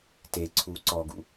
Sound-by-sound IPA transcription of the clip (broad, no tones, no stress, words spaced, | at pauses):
teǀʰuː ǀɔɡṵ